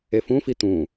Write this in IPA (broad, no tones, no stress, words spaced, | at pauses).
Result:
efũfi t̪ũ